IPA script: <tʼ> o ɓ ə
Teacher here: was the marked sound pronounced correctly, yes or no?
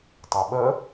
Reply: no